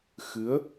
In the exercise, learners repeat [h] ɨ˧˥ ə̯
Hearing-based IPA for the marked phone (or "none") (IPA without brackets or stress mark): x